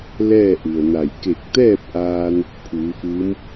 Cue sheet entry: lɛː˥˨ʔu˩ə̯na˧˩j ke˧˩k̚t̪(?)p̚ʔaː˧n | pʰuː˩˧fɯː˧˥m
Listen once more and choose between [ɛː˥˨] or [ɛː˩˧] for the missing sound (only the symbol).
ɛː˥˨